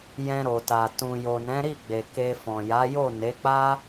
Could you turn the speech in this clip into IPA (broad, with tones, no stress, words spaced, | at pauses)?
jɛ̃˧ɾo˨ta˨ tũ˨ jo˨nɛ̃˨˦ɾi˦˨ɡ͡be˨ ke˧fɔ̃˨ ja˨˦jo˦˨ne˨˦k͡pa˦